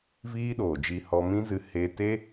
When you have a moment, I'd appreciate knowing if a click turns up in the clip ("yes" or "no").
no